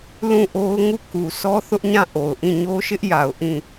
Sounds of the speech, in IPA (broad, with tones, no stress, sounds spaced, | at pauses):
l ũ˦˨ ʔ o˦ ʊ̯ ŋ u˦˨ k u˨ sʰ ɔ˦ θ ʊ˦ ʔ ɲ ã˦˨ ʔ o˨ ʊ̯ ʔ ĩ˦˨ ɲ o˦ ʃ ɪ˦ ʔ j a˨ ʊ̯ ʔ ĩ˦˨